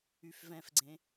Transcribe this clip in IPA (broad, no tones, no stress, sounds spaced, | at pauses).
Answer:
y f v ɛ̃ f ɡ͡ǀ ẽ